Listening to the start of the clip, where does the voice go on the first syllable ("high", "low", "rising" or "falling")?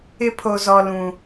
high